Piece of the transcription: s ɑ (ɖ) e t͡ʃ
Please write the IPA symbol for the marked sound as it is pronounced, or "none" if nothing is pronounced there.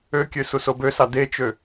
d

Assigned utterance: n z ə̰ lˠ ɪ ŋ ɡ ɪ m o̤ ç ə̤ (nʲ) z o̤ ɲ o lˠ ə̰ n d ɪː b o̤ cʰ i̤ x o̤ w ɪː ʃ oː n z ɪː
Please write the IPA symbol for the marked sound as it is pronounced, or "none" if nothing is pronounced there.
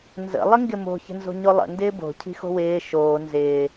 n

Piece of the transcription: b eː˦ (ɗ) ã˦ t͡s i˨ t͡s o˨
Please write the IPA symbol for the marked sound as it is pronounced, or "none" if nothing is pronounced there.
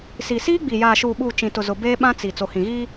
ɓ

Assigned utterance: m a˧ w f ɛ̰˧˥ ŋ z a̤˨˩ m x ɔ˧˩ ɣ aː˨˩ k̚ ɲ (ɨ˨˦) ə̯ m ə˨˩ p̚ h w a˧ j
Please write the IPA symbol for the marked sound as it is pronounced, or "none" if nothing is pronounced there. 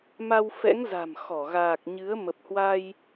ɨ˨˦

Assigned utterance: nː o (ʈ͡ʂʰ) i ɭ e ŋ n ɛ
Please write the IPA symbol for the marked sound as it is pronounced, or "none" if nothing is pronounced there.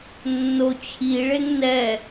t͡ɕʰ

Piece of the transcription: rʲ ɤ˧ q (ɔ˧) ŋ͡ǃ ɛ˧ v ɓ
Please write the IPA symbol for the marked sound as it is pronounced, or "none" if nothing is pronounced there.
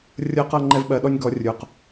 ɤ˧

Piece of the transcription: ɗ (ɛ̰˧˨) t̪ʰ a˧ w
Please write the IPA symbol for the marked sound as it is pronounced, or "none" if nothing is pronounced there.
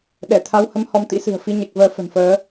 ɛ˧˩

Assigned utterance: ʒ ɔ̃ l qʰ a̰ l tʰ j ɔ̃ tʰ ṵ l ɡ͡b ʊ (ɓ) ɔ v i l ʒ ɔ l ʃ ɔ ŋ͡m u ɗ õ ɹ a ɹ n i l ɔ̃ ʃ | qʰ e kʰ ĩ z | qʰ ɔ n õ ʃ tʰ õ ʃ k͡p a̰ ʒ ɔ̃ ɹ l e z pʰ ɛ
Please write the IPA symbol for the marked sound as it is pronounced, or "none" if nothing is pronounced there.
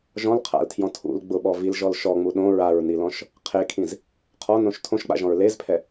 ɓ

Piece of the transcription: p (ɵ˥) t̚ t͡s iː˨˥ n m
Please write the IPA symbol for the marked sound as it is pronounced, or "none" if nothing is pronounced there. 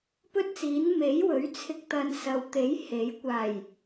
ɵ˥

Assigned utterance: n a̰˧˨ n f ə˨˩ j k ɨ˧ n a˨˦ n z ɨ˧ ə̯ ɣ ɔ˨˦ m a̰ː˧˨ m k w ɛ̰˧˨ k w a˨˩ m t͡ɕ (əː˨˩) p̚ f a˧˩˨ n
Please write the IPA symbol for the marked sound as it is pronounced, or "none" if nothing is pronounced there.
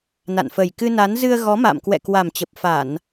ə˨˩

